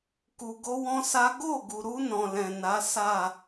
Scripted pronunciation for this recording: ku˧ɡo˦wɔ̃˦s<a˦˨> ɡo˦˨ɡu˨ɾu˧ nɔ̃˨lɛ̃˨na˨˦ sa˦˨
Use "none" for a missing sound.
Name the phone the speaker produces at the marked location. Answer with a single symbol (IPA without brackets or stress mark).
a˦